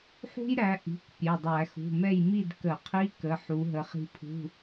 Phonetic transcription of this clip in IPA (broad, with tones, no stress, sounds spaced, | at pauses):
ħ ṳ˥ j ɾ æ˨˦ ʔ i̤˩˧˩ k pʲ e˩˧˩ dˤ æ˧˩˧ x ṳ˩˧˩ m ɛ˥˨ j m i˥˨ d k ə˧˩˧ qʰ i˧˥˧ k ə˩˧˩ ħ u˨˦ ɦ ə˨˦ χ i̤˥ pʰ ṳ˧˥˧